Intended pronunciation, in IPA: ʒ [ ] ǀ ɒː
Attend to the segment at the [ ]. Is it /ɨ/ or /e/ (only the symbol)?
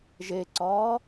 e